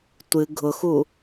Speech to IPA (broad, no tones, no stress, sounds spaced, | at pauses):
tʷ ɨ ɡʱ ʊ x u